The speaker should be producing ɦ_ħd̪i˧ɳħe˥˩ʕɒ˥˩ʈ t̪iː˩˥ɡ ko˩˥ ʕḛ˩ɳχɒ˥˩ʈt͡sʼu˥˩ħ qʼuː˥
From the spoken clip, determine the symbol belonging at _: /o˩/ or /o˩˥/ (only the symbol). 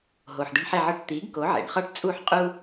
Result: o˩